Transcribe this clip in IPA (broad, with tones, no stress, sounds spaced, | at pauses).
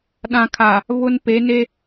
ɗ ã˨ kʰ a˨ | β ʊ˦ n p e˨˦ n e˦